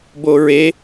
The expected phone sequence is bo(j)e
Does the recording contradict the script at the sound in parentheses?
yes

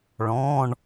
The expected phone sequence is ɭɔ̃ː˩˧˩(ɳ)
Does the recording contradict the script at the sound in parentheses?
no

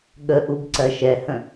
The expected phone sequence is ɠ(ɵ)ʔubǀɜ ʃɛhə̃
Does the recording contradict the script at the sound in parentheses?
yes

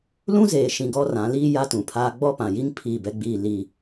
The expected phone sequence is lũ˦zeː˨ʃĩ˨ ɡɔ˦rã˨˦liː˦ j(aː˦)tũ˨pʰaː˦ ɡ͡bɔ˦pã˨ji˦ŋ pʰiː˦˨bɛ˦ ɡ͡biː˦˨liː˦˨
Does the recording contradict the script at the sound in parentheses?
yes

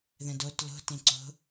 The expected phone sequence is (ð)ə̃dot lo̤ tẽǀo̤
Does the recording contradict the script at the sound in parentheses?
no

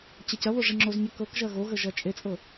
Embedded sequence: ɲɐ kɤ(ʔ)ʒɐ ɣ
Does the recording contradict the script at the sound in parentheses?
yes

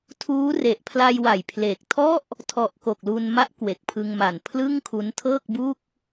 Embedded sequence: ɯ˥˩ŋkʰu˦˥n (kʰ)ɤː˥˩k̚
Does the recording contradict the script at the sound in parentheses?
yes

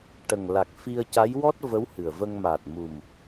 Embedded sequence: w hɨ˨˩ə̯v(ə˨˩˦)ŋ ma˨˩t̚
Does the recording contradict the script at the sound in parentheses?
yes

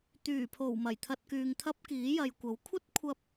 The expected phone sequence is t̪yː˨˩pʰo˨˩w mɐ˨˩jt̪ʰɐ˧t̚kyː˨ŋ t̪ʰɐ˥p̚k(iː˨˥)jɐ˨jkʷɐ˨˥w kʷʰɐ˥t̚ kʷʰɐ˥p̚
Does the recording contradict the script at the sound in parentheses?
no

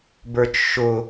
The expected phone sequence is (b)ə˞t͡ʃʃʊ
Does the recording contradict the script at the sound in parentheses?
no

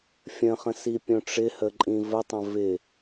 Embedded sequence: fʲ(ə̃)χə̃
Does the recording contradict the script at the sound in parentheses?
no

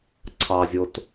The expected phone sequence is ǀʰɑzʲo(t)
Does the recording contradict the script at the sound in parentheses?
no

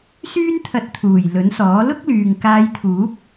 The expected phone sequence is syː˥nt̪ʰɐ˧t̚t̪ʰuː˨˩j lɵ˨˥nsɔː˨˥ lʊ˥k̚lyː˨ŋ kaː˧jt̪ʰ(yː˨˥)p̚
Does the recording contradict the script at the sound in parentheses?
yes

